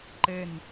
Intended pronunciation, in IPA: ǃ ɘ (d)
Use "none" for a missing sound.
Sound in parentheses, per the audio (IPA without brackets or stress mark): n